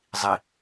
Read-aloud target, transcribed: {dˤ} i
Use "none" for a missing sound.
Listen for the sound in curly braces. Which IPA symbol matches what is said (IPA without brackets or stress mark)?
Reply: zˤ